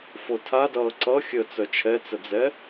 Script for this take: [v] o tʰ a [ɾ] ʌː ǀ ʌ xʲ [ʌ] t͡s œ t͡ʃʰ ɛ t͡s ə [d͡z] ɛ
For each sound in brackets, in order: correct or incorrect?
incorrect: f, incorrect: d, incorrect: ə, correct

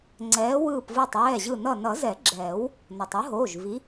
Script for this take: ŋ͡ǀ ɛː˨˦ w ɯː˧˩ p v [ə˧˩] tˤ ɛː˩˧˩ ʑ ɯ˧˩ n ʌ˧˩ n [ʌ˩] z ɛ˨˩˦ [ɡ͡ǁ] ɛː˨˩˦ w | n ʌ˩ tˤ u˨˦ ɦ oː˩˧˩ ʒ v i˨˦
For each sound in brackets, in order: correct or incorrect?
incorrect: ɯ˧˩, incorrect: ʌ˨˩˦, correct

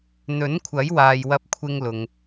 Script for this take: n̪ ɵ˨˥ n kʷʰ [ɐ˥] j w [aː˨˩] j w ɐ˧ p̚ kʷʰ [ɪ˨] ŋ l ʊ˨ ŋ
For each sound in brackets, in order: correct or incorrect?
incorrect: ɐ˨˥, incorrect: aː˨, incorrect: ɪ˧

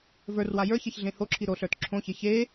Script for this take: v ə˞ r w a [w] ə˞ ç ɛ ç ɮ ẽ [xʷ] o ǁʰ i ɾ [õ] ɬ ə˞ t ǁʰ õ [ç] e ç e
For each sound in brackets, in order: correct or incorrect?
incorrect: j, incorrect: h, incorrect: o, correct

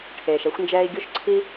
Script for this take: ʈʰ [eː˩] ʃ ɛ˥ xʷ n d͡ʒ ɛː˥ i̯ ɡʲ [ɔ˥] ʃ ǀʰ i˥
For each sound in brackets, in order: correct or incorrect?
correct, incorrect: o˥

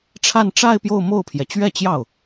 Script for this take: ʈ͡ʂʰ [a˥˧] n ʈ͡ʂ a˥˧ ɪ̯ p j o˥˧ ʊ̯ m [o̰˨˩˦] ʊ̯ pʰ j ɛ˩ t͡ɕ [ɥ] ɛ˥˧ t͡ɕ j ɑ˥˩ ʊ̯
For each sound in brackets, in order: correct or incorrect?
correct, incorrect: o˥˩, correct

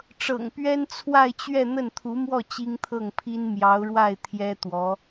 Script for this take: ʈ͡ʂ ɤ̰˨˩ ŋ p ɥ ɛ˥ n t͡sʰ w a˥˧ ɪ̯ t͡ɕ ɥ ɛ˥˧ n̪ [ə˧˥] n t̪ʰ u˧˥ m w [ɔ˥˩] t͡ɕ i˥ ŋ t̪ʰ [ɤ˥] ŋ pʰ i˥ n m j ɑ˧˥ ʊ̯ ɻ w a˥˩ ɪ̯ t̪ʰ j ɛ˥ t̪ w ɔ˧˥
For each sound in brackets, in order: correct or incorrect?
incorrect: ə˥˩, correct, incorrect: ɤ˥˩

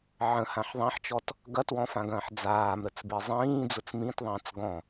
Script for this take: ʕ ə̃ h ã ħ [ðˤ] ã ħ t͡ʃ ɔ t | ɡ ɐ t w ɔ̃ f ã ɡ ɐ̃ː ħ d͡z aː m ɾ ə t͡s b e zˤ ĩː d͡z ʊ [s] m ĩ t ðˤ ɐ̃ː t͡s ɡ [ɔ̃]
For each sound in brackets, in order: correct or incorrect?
correct, incorrect: t͡s, correct

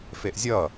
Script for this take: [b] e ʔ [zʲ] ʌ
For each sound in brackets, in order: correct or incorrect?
incorrect: f, correct

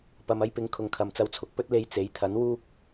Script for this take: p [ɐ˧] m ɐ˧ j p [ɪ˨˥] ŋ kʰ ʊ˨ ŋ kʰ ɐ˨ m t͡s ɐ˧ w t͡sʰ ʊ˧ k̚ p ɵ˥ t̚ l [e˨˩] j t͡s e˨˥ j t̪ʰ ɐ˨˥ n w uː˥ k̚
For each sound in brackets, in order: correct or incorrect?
incorrect: ɐ˨, correct, incorrect: e˧

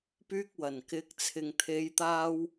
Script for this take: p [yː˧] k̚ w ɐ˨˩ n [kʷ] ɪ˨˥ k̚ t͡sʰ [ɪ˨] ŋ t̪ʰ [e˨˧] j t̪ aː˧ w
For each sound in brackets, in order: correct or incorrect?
correct, incorrect: k, correct, correct

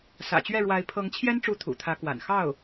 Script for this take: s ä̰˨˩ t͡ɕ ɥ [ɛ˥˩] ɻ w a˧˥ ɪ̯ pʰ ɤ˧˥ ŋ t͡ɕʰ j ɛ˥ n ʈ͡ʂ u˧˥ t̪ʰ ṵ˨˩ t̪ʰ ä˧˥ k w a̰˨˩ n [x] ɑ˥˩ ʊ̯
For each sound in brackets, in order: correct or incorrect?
correct, correct

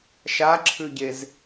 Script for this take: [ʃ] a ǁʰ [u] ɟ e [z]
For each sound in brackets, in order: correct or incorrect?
correct, incorrect: ʉ, correct

